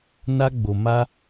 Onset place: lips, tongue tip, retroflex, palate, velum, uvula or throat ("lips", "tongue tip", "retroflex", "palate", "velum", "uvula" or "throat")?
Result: tongue tip